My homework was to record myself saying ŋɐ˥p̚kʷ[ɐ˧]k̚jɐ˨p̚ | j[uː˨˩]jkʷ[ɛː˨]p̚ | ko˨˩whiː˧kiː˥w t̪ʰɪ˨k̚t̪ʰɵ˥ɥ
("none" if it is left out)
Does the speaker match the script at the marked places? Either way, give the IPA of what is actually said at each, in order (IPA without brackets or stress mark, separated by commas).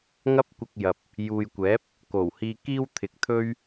ɐ˧, uː˨, ɛː˨˥